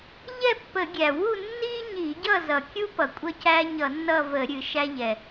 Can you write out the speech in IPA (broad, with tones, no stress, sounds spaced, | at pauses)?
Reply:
ʎ ɛ˥˨ pː ə˧˩˧ ɡʲ æ˩ w u˥˨ nː i˦ ɲ i˧˩˧ ɟ ʌ˥˨ z ʌ˩ kʲ u˦ p ʌ˩ kʷʼ ʌ˦ c æ˦ ɲ ʌ˧˩˧ nː ʌ˥˨ v ə˧˩˧ ɾʲ ɨ˧˩˧ ʃ æ˦ ʎ ɛ˩